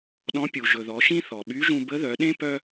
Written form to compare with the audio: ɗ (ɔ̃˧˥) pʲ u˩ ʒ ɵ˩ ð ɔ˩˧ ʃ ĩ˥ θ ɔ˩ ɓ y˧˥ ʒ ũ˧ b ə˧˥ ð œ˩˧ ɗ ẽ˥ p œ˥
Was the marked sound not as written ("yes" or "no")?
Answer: no